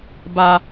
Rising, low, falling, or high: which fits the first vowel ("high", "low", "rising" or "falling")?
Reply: high